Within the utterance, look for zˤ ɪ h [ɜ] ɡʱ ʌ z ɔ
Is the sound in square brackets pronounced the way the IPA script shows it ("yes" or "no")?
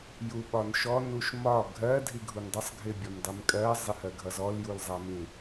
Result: yes